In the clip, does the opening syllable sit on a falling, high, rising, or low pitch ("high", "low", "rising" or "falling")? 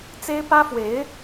high